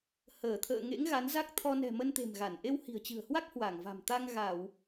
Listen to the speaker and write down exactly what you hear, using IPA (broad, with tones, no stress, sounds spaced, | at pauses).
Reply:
h əː˧˩ t̪ʰ ə̰ː˧˨ ŋ ḛ˧˥ ŋ ɣ a˨˦ n z a˦˥ k̚ t̪ʰ ɔ˧ n ɛ̤˨˩ m ə˧ n t̪ e̤˨˩ m ɣ a˧˩ n ʔ e˧ w h i̤˨˩ ə̯ t͡ɕ ɨ̤˨˩ ə̯ h w a˦˥ k̚ h w a˧˩ ŋ v a̤˨˩ m t̪ a˧ ŋ ɣ a˧˩˨ w